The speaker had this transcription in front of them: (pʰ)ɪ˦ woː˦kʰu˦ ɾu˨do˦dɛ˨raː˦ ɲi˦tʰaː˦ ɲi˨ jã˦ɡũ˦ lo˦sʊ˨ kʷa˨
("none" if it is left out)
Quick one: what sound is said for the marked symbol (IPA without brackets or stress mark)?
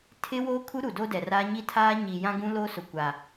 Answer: tʰ